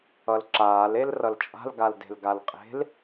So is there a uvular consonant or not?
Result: yes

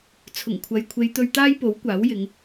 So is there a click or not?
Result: no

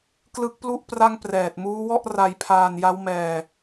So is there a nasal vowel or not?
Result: no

